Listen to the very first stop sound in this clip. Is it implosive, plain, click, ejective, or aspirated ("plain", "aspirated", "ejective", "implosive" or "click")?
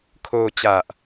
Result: aspirated